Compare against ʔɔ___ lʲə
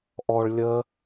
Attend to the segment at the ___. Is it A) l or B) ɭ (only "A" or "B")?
B